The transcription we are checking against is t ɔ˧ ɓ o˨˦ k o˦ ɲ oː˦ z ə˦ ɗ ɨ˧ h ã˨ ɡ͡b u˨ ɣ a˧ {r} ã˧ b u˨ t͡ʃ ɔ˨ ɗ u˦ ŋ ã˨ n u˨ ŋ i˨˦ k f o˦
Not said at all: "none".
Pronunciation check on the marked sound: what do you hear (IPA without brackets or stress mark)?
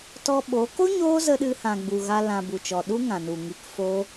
l